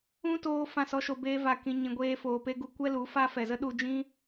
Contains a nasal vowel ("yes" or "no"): yes